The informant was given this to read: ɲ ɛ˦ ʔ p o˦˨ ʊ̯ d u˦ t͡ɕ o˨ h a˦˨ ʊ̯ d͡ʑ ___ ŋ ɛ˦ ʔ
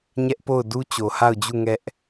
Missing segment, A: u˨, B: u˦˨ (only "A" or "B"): B